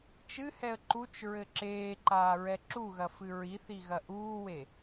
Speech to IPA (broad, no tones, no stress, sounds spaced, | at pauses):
t͡ʃ ɨ h ɛ ə̯ ǃ u t͡ʃ ɹ ɘ ǁ eː ǃ aː ɹ ɛ ǁ u ɣ ɐ f ɨ ɹ i θ i ɣ ɐ ʔ uː w e